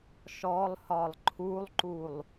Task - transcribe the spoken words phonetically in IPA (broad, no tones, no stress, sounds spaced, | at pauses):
ʃ ɔ lˠ h ɒ lˠ ǃʰ u lˠ ǃ u lˠ